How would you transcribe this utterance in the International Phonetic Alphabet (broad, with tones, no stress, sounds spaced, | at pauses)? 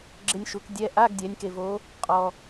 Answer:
ɡ͡ǁ ɪ˧ nʲ ʃ u˩˧ k dʲ ɛ˧˥˧ ʔ a˧˥˧ ɡ dʲ ɛ˩˧ nʲ k e˩ v o˩˧ | qʼ ɔ˩